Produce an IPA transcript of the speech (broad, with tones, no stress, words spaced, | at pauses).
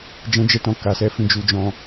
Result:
d͡ʒɛ̃˧d͡ʒɛ˧tɔ̃˨ ka˨sɛ˧fĩ˨ d͡ʒu˧d͡ʒɔ̃˧